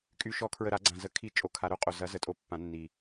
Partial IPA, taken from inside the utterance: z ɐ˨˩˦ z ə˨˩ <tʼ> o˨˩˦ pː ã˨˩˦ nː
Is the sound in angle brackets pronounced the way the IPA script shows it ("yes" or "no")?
yes